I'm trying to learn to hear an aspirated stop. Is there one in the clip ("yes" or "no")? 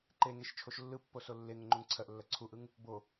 yes